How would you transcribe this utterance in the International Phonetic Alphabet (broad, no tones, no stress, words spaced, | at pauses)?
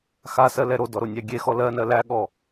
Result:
xasɜlɛ ɾodɔɾonʲæ ɡʲexɔ lɜnɜ læɠɔ